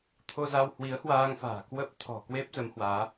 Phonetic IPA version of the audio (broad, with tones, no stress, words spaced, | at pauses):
t̪ʰo˧za˧w hwi˨˦ə̯hwaː˧ŋfa̤ː˨˩ kwə˦˥p̚t̪ʰɔ̤˨˩kwe˦˥p̚ zə˨˦mhwaː˨˦